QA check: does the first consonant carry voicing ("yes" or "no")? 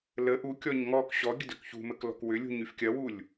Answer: yes